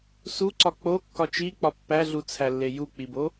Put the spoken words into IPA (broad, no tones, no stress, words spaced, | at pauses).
suǀɒ k͡pokːɒ t͡ʃik͡pɒ pːæɮut͡sʰælːe juk͡pibo